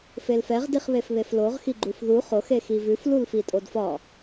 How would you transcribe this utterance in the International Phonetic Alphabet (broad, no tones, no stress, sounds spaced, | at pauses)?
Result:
f e l f ɛ ʁ d i χ β e f β e f l o ʁ x i ɡ͡ǃ u f ð u χ o x e x i v ʉ f l u l f i tʼ o d f ɒ